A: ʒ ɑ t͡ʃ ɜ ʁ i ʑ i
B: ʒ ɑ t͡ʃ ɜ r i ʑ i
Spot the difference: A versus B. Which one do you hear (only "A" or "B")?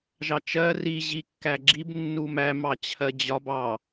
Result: B